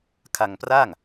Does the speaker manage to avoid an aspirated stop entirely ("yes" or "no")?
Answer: no